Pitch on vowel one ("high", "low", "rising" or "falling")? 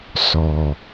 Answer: low